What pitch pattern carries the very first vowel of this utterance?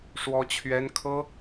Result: high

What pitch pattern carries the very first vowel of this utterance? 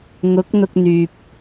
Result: rising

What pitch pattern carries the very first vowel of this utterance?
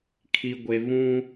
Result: low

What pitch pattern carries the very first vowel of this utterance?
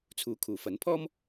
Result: rising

